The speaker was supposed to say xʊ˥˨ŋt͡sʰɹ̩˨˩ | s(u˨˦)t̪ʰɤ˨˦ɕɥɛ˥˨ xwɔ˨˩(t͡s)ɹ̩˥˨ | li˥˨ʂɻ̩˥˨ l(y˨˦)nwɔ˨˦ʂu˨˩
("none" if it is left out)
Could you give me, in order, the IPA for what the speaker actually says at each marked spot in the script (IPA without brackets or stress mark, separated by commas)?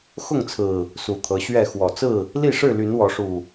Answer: u˨˩, t͡s, y˨˦